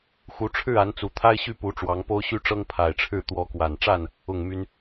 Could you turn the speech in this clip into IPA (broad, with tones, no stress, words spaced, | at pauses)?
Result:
xu˨˦ʈ͡ʂʰɻ̩˥˨a˨˦nt͡su˨˩ t̪ʰa˦ɪ̯ɕy˥˨ pu˨˦ʈ͡ʂwɑ˨˦ŋ po˦ʊ̯ɕy˦ʈ͡ʂɤ˦ŋ pʰa˨˩ɪ̯ʈ͡ʂʰɻ̩˥˨ t̪wɔ˨˦kwa˨˩nʈ͡ʂa˥˨n | ʊ˥˨ŋ my˦n